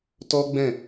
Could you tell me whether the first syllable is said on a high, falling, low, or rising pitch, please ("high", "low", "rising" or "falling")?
high